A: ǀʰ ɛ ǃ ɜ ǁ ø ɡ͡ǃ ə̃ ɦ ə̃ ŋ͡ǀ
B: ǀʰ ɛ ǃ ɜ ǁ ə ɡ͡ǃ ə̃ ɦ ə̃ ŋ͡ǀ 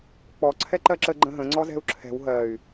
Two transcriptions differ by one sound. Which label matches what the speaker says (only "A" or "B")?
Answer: B